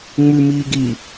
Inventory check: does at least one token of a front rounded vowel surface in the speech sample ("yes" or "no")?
no